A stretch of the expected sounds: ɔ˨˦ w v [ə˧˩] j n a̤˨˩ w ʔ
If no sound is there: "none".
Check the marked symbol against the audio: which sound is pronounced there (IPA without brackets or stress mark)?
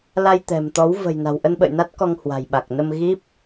ə̤˨˩